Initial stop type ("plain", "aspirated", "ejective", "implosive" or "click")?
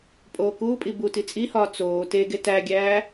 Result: ejective